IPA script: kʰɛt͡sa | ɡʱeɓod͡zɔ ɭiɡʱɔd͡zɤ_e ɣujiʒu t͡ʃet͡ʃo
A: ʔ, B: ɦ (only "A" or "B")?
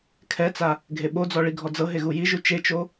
B